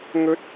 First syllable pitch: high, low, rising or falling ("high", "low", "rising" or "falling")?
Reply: high